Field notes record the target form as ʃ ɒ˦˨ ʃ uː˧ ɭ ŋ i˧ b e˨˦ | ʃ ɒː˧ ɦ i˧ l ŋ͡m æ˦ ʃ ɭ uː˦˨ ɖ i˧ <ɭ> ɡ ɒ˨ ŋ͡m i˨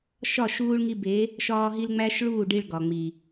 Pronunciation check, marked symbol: correct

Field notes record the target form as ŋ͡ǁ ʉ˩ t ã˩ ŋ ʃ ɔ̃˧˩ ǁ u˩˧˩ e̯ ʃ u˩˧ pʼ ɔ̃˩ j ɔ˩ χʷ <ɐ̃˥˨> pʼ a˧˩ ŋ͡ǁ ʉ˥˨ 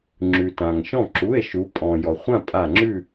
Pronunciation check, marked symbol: incorrect: ã˥˨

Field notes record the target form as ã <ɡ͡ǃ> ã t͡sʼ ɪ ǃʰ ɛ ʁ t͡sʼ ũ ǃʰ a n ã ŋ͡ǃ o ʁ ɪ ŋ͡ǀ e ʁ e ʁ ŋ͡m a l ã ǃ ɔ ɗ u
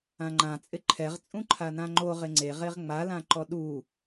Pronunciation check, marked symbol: incorrect: ŋ͡ǃ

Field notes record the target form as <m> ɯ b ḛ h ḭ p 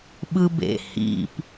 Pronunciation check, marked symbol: incorrect: ɓ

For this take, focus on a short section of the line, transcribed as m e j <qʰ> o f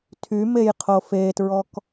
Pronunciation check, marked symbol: correct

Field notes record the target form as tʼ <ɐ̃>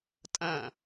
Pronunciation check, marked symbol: correct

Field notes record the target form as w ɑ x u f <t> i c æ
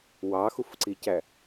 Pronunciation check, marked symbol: incorrect: ǀ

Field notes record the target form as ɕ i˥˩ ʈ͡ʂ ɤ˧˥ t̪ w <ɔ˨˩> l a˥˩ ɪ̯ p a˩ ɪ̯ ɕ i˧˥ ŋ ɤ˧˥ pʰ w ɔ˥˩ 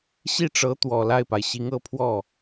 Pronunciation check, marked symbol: correct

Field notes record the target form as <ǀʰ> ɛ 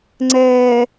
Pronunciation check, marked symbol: incorrect: ŋ͡ǀ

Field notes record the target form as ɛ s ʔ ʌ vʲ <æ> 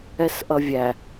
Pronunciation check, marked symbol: correct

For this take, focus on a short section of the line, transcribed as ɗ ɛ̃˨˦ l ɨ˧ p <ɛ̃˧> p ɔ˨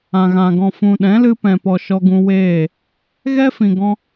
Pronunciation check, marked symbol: incorrect: ɛ̃˨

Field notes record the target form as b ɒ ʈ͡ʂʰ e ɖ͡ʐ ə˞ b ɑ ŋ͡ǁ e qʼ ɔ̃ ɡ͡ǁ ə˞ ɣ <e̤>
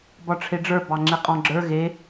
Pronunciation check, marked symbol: incorrect: e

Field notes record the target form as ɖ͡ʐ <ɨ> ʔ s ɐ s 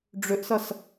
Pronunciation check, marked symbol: incorrect: ʏ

